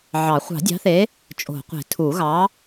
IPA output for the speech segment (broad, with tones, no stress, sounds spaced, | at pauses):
ʕ ɑ˨˩˦ χʷ ɑ̤˨˩˦ dʲ ɑ̤˨˥ θ e˨˥ | t͡ʃʼ o̤˨˩˦ qʷ e̤˨˩˦ tʰ u˨˩˦ ɣ ɑ˨˥